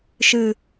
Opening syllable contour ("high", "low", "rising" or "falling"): low